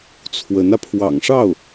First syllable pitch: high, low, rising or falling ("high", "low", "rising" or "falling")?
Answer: rising